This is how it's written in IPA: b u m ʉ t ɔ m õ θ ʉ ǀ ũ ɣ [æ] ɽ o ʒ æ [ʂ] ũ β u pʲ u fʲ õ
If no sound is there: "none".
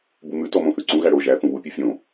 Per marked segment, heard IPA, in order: æ, θ

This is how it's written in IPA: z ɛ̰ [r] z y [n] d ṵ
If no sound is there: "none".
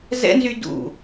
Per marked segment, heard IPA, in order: n, none

